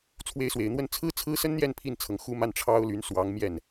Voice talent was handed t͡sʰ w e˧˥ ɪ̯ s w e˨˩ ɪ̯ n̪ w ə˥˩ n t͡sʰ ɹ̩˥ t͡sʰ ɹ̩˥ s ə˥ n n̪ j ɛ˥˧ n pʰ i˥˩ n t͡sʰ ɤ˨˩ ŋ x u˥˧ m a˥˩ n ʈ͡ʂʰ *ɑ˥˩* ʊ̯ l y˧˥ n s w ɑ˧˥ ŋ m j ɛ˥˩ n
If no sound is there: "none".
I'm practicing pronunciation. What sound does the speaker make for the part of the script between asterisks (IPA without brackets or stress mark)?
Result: ɑ˥